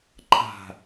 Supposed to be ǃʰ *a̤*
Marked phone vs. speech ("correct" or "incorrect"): correct